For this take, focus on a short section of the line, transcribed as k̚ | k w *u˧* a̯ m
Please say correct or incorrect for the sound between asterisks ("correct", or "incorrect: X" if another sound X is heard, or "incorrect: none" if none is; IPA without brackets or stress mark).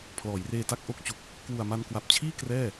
incorrect: u˨˩